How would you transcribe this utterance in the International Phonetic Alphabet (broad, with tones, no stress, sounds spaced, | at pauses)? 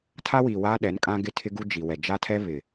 tʰ a˦ w i˨ w aː˦ ɗ ɛ˨˦ n kʼ ã˦ ɡ ɪ˦ tʰ ɪ˦ ɡ u˦ d͡ʒ i˨ w ɛ˨ d͡ʒ a˦ tʰ ɛ˦ β ɪ˨